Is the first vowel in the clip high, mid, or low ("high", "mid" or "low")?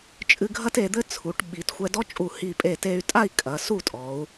high